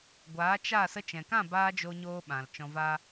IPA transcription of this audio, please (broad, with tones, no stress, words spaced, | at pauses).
ɡʷaː˨˦t͡ʃa˦˨ sə˧t͡ʃɛ̃˨kã˦˨baː˧ d͡ʒo˧ɲoː˧ɓã˨l t͡ʃɔ̃˧va˦